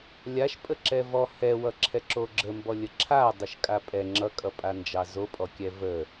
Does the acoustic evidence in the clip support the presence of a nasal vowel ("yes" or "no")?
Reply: no